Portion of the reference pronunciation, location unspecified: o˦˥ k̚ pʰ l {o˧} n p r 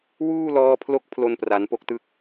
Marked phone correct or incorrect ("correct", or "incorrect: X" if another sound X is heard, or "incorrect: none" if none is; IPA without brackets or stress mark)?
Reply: correct